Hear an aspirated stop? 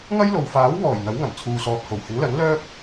yes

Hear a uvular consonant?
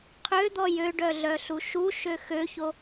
yes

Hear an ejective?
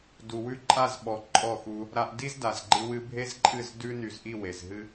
yes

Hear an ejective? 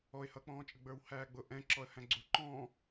yes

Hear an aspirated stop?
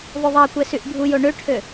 yes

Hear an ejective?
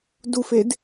no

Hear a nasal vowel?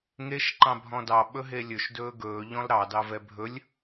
yes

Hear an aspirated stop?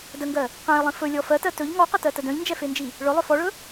no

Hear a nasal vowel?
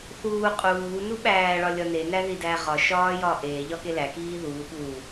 no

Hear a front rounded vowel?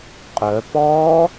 yes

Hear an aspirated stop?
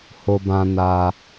no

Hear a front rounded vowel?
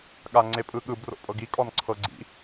no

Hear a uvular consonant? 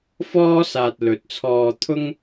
no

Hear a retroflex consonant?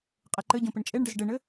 yes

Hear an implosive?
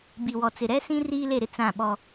yes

